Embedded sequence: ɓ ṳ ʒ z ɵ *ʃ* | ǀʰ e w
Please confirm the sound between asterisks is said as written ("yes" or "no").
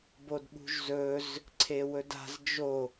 no